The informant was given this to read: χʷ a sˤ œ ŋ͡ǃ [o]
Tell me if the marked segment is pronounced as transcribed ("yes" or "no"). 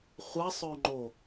yes